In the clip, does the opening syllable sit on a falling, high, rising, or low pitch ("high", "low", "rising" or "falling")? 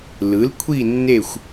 rising